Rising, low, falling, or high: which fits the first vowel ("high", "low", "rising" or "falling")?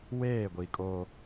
falling